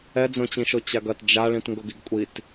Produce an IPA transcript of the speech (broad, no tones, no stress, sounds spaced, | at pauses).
ɛ d͡z õ t͡ɕ ĩ ʃ o t͡ɕ a ɡ ɐ t d͡ʒ a ɭ ĩ t ŋ ɡ o ɡ i ɡ kʷʼ i t